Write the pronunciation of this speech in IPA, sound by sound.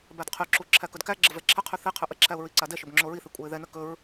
b æ d qʰ y ǁ u ǁʰ æ k ɵ d k æ ɡ͡ǁ ə v ɛ ǁʰ ə qʰ y θ i qʰ ɵ ʔ ə ǁʰ æ ʊ̯ ɹ i ǀ a d ɛ ʃ ɵ b ŋ͡ǁ o ɹ i θ i kʷʼ æ ɪ̯ ð ɛ n ə k ɵ ɹ

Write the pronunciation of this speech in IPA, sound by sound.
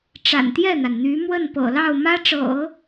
ʈ͡ʂ a̰˨˩ n t̪ j ɛ˥˩ n̪ a˩ n n̪ y˧˥ m w ə˥˩ n p ɤ̰˨˩ l ɑ˥˩ ʊ̯ m ä˥ ʈ͡ʂ ɤ̰˨˩˦

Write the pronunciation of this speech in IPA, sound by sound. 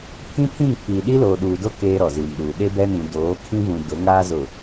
pʰ ĩ˦ pʰ ĩ˦˨ ŋ pʰ iː˨ ɗ i˦ l oː˨ ɗ uː˨ d o˦ k eː˦ ɾ ɔ˨ z iː˨ m ɗ uː˨ ɗ e˦ b ɛ˦ n ĩ˨ d oː˨˦ kʰ ĩ˦ v ũ˨ d ʊ˨˦ ŋ aː˦ z ʊ˨

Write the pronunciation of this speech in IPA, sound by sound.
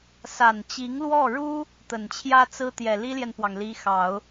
s a˨˩ n t͡ɕ i˧˥ ŋ l w ɔ˥˩ ɻ u˥ | t̪ ə˨˩ n t͡ɕʰ j ä˥ t͡s ɹ̩˥ t̪ j ɛ˨˩ l i˥ l j ɛ˨ n p w ɑ˩ ŋ l i˧˥ x ɑ˨˩˦ ʊ̯

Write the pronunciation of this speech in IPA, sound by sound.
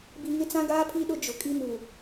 b i˨ ŋ ɪ˦ t͡s ã˦ ɡ aː˦ pʰ i˦ ɗ ʊ˦ d͡ʒ ʊ˨ kʼ i˦ m u˨

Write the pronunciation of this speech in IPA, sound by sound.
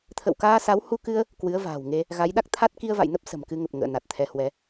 t̪ʰ ə̰˧˨ w k aː˧ s a˨˦ w h u˧ k ɨ˧ ə̯ | k w ɨ˨˦ ə̯ v a̤ː˨˩ w ŋ e˧ | ɣ a˨˦ j ɗ a˦˥ k̚ t̪ʰ a˦˥ t̚ k i˧ ə̯ v a̰˧˨ j n ə˦˥ p̚ s ə̤˨˩ m k ɨ˧ ŋ ə˨˩ p̚ ŋ ə̰ː˧˨ n a˨˩ t̚ t̪ʰ ɛ˨˦ h w ɛ˨˦

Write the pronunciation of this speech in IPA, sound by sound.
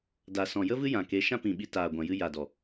d a˨ s ɔ̃˨ j ə˦ v ɨ˦ j ã˨ k e˨˦ ʃ ã˦ p ĩ˨ ɓ i˧ t aː˨ ɡʷ ã˨ j ɨ˧ j a˨ d ɔ˨

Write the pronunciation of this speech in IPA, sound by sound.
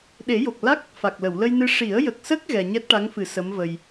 ɗ e˨˩˦ j o˨˩ k̚ l a˦˥ k̚ | f a˨˩ k̚ l ə˨˩˨ w l ə˧ j n ɨ˧ ʂ i˨˩˦ ə̯ j ə˨˩ k̚ s ə˦˥ k̚ ɣ ɛ˧ ɲ ɛ˦˥ t̚ ʈ a˧˥ ŋ f ɨ˨˩˦ s ə˧˥ m v ə˧ j

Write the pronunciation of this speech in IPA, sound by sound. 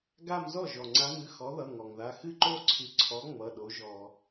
ɡ a˥˧ m z ɔ˥˩ ʒ ɔ˩ ŋ͡ǀ a˨˥ m ɨ˩˧˩ x ɔ˨˥ ð ʌ˩˧˩ ŋ ɔ˩ ŋ ð a˩˧˩ x ɨ˥˧ ǃ o˥˧ ǀʰ ɨ˨˥ ǀʰ ɔ˨˥ ŋ͡m ʌ˩˧˩ ɗ o˨˥ ʒ ɔ˧˩˧

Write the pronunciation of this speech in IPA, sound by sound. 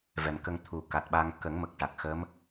v ɛ˨˩ m k ə˧ ŋ t̪ʰ u˨˩˦ k a˨˩ t̚ ɓ a˧ ŋ k ə˨˩˦ ŋ m ə˨˩ k̚ ʈ a˨˩ k̚ x ə˧˥ m

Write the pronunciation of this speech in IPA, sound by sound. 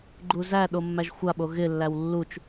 ɡ͡ǃ u z æ ɗ o mː æ ʒ xʷ a ɓ o ɣ ɪ lː æ w lː u t͡ʃ

